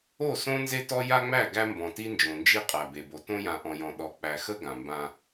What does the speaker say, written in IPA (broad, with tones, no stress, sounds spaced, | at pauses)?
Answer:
o˦˨ s õ˦ n z e˦ t ɔ˦ j a˦ ŋ͡m æ˦˨ ɡ æ˦ m b ɔ̃˨ t i˦ n d͡ʒ õ˨ n d͡ʒ i˦ qʼ æ˨ b e˨ b o˨ t õ˦ j ã˨ ʔ ɔ̃˨ j ɔ̃˨ ɗ ɔ˨ k͡p æ˨ x ə˦ ɡ ã˨ m b ã˦